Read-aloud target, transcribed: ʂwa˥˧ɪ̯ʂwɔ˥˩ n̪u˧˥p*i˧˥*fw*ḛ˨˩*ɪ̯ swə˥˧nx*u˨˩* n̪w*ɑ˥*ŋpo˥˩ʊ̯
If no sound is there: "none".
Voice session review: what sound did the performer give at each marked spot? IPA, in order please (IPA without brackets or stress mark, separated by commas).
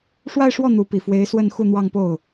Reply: i˨˩, e˧˥, u˥˧, ɑ˥˧